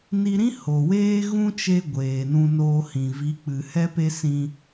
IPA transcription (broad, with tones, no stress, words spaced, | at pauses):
ni˧ɾĩ˦ ho˨weː˦ɣũ˦ t͡ʃe˦ ɡʷeː˨nũ˧noː˧hĩ˨ vi˨˦k͡pɨ˨ hɛ˦pe˦sĩ˧